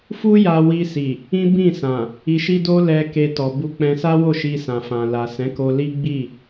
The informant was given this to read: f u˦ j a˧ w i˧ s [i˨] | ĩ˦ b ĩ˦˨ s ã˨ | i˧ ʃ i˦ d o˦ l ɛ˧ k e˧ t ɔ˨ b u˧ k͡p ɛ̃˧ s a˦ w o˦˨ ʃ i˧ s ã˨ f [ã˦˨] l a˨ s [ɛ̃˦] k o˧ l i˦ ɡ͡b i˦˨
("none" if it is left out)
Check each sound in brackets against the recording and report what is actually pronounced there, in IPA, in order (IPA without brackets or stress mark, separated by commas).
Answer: i˨, ã˨, ɛ̃˨˦